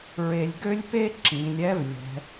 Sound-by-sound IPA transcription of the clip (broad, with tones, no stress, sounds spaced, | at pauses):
ɹ e˧ lʲ ɡ ø˥ lʲ p e˥ ǁ ĩ˩˧ lʲ ɛ˧˥ v lʲ ɛ̤˩˧